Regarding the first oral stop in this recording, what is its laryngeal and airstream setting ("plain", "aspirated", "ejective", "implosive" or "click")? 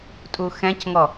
ejective